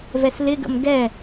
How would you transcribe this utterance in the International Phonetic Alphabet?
v ɛ s l ɪ ɡ ə̰ m ɡ ɛ

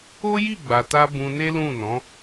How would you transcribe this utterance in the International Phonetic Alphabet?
o˦ j i˦˨ ɡ͡b a˨ t a˧ b ũ˧ n e˦ l ũ˦˨ n ɔ̃˨˦

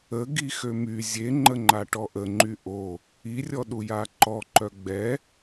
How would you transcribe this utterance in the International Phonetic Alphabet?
ə ɡ i x ø m y zʲ e ŋ͡ǃ ə ŋ͡ǃ a ʈ ɔ ʔ ə ŋ͡ǃ y ʔ o | i rʲ ɔ ɗ u j a ǃ ɔ ǃ œ ɡ͡b ɛ

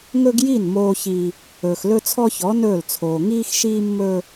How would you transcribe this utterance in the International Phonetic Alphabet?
ŋ ɵ˦ ɡ j i˦˨ n m oː˦ ç i˦ | ɵː˨ x l ɵ˦ t͡sʰ ɔ˦ ç ɔ˨˦ n ɵː˦˨ l t͡sʰ oː˨ ŋ iː˦ x ʃ iː˦ mː ɵ˦

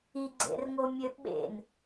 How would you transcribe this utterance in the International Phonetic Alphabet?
i ɡ͡ǀ ḛ r ŋ o mʲ ø ɓ ḛ n

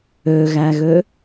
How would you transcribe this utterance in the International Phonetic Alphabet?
ø ɣ æ ɣ ø

